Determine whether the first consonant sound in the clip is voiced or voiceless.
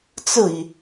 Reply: voiceless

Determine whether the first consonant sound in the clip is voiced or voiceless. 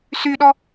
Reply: voiceless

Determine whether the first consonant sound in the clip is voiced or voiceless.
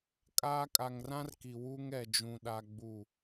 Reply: voiceless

